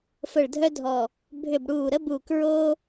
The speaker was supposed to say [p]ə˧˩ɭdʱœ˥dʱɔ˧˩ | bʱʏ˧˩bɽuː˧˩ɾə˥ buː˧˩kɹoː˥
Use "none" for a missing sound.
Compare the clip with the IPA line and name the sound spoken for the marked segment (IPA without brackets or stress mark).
f